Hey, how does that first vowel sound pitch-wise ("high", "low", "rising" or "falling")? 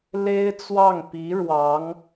high